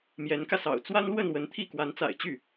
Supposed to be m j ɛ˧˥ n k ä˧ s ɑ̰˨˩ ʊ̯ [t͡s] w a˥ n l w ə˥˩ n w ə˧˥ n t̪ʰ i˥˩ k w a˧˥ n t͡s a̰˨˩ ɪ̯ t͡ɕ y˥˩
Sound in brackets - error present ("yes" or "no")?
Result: no